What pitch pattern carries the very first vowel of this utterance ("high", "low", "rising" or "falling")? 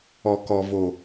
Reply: low